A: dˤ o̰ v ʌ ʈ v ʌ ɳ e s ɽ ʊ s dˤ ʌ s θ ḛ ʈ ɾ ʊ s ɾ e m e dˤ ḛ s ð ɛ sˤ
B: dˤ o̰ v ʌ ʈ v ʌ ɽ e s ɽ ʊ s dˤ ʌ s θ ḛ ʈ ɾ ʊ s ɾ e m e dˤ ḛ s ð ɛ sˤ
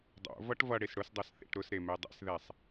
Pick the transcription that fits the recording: B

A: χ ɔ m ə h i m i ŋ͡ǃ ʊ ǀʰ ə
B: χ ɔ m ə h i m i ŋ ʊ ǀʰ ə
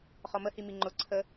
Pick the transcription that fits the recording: A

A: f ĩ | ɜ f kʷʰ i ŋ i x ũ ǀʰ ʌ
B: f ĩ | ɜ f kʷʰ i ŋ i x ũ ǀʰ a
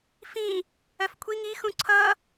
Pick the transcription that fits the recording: A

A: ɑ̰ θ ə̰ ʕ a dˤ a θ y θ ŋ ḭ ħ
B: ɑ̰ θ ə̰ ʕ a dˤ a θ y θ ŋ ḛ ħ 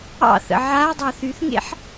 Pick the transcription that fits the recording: B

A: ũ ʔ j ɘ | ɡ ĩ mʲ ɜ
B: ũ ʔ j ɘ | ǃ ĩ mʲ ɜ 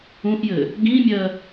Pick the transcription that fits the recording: A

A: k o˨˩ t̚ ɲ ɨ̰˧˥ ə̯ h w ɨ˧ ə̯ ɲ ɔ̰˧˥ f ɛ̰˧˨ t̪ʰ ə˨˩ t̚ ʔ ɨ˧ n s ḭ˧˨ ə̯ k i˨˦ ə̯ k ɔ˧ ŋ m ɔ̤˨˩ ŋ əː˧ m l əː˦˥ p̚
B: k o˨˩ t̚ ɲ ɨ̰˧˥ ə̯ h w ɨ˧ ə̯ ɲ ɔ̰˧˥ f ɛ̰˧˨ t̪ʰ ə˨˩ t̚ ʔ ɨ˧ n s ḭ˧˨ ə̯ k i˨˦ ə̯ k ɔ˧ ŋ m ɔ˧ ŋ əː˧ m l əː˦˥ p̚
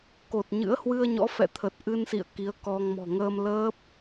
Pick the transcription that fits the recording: A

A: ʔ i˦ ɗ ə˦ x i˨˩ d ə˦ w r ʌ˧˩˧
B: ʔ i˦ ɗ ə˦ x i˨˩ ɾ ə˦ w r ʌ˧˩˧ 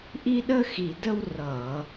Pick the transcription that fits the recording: A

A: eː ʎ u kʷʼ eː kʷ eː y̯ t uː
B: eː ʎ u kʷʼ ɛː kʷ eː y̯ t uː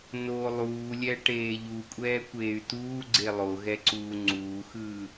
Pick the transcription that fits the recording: B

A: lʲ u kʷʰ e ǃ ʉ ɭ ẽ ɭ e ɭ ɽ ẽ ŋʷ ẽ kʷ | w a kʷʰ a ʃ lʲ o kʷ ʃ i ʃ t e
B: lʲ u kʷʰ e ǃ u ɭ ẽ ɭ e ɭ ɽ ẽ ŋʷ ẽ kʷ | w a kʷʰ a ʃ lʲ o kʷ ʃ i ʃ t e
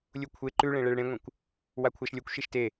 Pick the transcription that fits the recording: A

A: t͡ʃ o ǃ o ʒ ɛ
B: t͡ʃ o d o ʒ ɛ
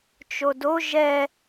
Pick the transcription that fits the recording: B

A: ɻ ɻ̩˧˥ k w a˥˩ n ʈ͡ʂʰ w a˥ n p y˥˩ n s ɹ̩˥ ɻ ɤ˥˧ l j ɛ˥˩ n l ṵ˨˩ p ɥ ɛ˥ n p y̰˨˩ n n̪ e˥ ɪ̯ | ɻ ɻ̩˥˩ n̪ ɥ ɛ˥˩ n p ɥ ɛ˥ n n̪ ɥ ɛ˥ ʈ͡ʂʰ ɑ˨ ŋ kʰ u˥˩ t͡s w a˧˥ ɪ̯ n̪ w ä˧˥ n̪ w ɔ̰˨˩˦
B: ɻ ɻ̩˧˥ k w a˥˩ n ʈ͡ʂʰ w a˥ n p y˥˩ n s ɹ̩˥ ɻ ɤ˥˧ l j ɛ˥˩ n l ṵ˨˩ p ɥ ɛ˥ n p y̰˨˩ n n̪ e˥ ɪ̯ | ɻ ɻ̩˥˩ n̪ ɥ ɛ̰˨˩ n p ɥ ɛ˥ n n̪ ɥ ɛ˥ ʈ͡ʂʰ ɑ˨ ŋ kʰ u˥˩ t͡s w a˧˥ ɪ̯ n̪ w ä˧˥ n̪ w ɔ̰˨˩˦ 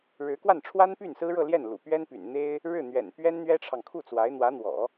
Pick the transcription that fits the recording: B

